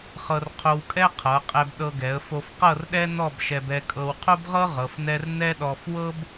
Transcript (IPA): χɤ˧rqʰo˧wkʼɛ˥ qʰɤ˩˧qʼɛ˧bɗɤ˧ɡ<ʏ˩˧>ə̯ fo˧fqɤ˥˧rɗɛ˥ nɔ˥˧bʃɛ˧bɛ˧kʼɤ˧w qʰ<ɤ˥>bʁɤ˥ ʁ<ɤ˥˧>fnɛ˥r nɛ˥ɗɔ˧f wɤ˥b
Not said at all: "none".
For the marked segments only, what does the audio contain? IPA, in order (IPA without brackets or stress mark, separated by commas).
ɛ˩˧, o˥, ɤ˩˧